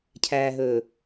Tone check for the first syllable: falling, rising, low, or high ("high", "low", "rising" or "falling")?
low